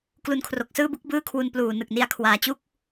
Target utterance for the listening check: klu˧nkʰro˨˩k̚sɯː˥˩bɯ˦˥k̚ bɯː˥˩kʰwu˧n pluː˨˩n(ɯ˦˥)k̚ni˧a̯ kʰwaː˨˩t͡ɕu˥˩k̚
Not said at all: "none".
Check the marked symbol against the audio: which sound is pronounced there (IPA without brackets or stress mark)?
ɯ˨˩